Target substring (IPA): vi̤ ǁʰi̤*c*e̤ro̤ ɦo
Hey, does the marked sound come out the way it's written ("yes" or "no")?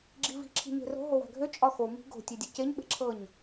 no